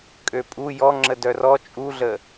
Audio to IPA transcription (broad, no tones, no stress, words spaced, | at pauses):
kʼøpʼu jɔŋ͡ǁə dœrɔ t͡ʃʼuɮə